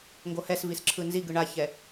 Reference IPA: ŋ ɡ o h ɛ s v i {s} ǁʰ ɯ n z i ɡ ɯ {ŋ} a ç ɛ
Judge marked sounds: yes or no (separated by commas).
yes, no